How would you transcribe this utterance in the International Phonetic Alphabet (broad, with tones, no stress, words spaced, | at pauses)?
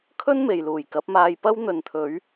kʰɵ˥n me˨jluː˨˩jkɐ˨˥p̚ maː˧jpɐ˥w n̪ɵ˨nt̪ʰɵ˨˧ɥ